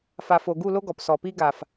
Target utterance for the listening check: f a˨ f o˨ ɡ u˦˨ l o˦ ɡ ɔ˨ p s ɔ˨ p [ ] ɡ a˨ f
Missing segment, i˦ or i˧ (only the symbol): i˦